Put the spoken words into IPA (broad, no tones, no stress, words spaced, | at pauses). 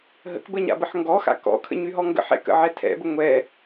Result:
ɦə̰kbə ɲa̰bəħŋɡɔxa̰ kɔ̰kʰə̰ ɲyɦɔŋɡə̰ħɛ̰ kə̰ʕɛtʰɛ̰bə ŋʷɛ